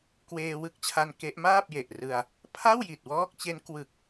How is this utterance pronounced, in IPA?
kweː˧wɯ˦˥k̚t͡ɕʰa˧n ke˦˥ʔmaː˥˩p̚je˨˩ʔrɯ˧a̯ | pʰa˥˩wji˨˩t̚wɔː˦˥k̚t͡ɕe˦˥n kwɯ˨˩k̚

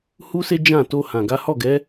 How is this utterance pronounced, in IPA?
hu˦se˦ d͡ʒã˦˨ to˧hã˨ɡa˨˦ hɔ˦˨ɡɛ˨˦

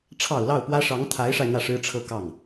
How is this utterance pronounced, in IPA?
ʈ͡ʂʰɑ˨˩ʊ̯ lɑ˥˩ʊ̯pwä˥ ʂɑ˧˥ŋt̪ʰa˧˥ɪ̯ʂa˧ɪ̯ n̪ä˥˩ʂɻ̩˥ʈ͡ʂʰɤ˥˧ kɑ˥˩ŋ

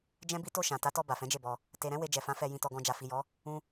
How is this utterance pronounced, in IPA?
d͡ʒɛ̃˦bi˦ to˦˨ ʃã˨ ta˨˦tɔ˧ ba˨fɛ̃˨˦d͡ʒe˦˨bɔ˧ | te˧ ɾɛ̃˦ we˧d͡ʒɛ˨fã˨˦ fɛ˧ jĩ˧tɔ˧ɡɔ̃˧ d͡ʒa˨fi˨jɔ˨˦ | ũ˧

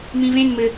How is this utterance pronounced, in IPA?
mĩvẽn mɘ

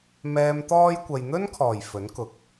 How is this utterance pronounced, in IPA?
mɛː˨mt̪ɔː˧j kʷɐ˨jn̪ɵ˥nkʰɔː˨˩j fɵ˨˥nkʊ˨k̚

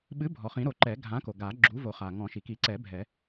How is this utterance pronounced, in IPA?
ɓɨ˨˥bʱɔ˩ χĩ˨˩˦ɾo˨˩˦ǃɛ˨˩˦ ɡʱã˨˥ko˩ ɡa˨˩˦ ɡ͡ǁu˨˥ vo˨˩˦χa˩ ŋɔ̃˨˩˦ʃi˩ki˨˩˦ǀɛ˨˩˦ bʱɛ˨˩˦

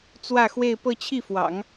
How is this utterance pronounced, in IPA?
t͡swä˥˧xwe˥˧ɪ̯ pɤ˥˧t͡ɕʰi˥˩fwɑ̰˨˩˦ŋ

